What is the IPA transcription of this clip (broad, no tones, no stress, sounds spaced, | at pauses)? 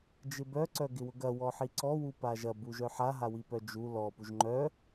d͡ʒ ɪ b œ ǀ œ ɡ ɪ w ʊ ɡ ɐ w ɔ ħ i ǀ ɔ w u p a ʒ ɐ b u ʒ œ ħ a ɦ a w i p œ d͡ʒ u l ɔ p u ʒ ŋ͡ǃ œ